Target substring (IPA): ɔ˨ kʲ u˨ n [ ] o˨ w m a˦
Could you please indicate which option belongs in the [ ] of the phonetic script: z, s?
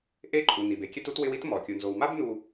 z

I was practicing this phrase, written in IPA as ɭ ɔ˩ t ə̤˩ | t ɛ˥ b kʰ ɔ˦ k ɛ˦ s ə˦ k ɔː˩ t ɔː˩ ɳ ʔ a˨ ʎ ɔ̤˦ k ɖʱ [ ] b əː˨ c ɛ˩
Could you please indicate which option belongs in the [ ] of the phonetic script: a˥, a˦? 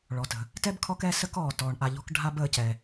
a˦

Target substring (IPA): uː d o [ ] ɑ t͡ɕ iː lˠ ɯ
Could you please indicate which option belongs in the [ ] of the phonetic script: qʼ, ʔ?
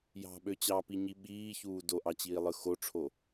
ʔ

